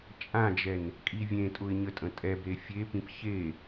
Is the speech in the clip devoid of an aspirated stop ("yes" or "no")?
yes